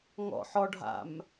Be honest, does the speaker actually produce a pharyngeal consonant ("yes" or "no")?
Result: yes